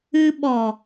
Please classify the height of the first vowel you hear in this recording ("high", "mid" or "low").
high